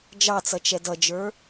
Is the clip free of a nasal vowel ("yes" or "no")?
yes